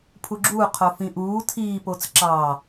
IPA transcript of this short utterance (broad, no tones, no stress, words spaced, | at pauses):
pʰuɡ͡ǁuː qʰofĩʔuː tʰiːpot͡s ǁɑ